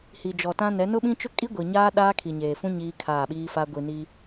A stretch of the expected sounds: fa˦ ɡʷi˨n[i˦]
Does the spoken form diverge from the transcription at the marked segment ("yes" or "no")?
no